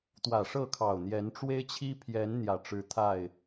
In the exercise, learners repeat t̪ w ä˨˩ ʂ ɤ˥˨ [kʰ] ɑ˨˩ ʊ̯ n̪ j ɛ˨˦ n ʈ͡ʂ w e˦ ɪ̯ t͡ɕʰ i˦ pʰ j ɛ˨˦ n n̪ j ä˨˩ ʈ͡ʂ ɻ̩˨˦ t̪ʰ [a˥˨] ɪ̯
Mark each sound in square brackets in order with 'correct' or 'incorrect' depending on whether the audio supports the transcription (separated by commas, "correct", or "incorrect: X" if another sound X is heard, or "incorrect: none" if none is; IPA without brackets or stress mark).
correct, correct